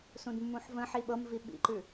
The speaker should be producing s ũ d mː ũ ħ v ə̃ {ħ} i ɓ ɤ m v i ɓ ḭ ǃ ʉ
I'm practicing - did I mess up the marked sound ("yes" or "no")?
no